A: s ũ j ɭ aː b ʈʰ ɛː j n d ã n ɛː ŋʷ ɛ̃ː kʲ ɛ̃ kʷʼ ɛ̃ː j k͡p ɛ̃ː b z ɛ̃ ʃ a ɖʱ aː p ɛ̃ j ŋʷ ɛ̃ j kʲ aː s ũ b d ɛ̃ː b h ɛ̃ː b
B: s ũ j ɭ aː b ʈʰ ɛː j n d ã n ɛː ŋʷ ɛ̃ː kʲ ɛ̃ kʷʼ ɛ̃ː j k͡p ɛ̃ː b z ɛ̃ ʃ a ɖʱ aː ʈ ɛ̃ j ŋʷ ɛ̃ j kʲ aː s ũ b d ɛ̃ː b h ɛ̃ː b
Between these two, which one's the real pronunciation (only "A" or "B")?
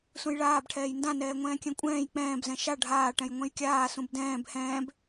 B